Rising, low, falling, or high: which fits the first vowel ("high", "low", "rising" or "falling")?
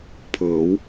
rising